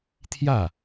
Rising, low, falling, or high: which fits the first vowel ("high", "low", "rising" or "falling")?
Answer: falling